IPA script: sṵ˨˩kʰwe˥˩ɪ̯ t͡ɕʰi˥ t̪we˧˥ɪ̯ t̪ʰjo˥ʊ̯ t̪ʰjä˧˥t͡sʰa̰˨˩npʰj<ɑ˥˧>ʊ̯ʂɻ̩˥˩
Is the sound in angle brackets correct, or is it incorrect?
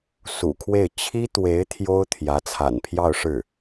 correct